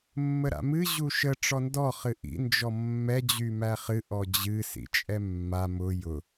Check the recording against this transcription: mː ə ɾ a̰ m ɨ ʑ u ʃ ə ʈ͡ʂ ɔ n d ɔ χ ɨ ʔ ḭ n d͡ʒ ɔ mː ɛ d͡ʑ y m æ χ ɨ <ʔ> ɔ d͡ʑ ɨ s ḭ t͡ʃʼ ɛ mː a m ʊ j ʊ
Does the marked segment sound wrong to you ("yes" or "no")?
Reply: no